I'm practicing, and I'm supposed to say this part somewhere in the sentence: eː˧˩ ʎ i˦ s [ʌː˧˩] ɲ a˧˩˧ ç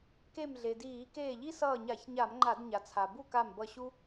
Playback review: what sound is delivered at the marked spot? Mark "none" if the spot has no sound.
ʌː˧˩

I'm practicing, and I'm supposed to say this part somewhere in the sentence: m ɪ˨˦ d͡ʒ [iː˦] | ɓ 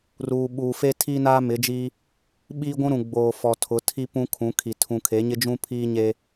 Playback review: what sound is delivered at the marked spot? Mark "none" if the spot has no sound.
iː˦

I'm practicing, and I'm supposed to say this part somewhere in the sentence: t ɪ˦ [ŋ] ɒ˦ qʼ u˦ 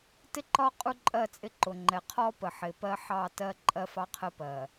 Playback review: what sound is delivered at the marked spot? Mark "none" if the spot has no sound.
ǃ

